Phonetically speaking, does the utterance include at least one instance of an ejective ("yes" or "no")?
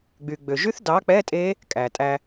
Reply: yes